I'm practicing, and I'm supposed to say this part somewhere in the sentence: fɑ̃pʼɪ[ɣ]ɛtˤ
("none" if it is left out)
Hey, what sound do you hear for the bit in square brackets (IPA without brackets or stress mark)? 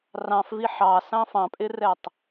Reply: r